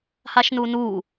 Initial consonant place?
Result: glottal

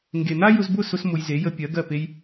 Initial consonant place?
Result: velar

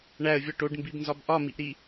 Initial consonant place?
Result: retroflex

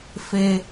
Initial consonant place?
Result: labial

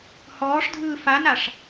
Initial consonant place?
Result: glottal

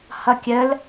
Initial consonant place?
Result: glottal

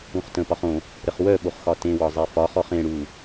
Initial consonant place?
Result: uvular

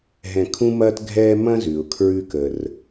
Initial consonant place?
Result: glottal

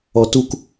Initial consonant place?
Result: alveolar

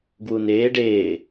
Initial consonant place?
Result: velar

